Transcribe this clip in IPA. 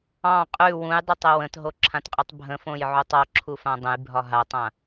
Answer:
ɑ̃ qʼ ʉ w ũ j dˤ o tˤ ə w ə̃ t ɦ o ǁʰ ã t qʼ ʉ tˤ bʱ ə̃ f õ j ʕ u tˤ ɒ ǁʰ u f ã dˤ ə̃ j bʱ ɒ ɦ a tˤ ã

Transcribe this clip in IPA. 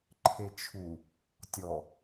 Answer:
ǃʰ e t͡ʃʰ u | tʲ ɔ

